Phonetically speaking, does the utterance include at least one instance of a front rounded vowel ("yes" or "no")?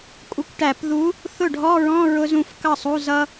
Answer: no